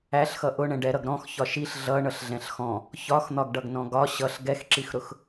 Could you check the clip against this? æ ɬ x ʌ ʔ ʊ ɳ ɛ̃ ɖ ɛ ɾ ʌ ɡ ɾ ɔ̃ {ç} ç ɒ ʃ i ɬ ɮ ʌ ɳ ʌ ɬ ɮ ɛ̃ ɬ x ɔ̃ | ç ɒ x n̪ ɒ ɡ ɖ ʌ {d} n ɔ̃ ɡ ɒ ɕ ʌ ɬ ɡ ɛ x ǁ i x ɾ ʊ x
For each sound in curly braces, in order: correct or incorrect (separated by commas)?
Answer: incorrect, incorrect